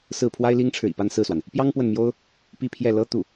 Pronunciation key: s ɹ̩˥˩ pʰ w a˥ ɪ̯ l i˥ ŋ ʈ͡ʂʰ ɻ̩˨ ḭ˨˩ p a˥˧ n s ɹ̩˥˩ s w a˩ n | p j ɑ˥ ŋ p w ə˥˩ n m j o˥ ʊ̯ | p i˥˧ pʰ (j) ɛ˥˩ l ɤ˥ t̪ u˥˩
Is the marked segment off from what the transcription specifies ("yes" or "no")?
no